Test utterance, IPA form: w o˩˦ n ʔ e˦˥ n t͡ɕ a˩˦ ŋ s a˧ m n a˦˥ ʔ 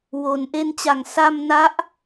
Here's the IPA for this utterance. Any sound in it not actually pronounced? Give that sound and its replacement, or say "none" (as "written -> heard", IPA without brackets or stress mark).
none